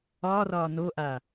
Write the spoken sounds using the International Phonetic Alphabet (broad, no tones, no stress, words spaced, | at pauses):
ɒrɒ noʔa